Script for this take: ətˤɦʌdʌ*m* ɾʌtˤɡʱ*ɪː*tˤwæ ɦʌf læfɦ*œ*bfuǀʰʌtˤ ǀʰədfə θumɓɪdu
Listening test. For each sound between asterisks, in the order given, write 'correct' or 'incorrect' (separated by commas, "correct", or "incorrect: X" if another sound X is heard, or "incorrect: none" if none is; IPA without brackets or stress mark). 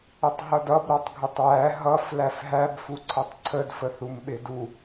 incorrect: b, incorrect: ɪ, incorrect: æ